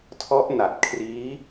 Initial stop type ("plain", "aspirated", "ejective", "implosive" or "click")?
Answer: aspirated